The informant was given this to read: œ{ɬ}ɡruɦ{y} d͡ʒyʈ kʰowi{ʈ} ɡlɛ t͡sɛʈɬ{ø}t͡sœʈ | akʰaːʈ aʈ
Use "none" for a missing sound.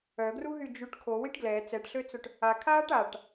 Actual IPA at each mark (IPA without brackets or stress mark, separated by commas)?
none, y, ʈ, ø